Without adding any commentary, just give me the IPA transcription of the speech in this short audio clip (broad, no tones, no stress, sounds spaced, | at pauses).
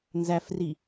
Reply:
n z æ f r i